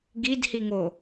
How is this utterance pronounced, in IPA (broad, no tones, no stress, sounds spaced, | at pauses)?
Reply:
ɡ i d h i ŋ o